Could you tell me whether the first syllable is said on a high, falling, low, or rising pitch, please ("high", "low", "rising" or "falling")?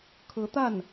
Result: rising